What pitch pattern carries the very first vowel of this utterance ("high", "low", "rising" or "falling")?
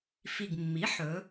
low